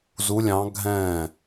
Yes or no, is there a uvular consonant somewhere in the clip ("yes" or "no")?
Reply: no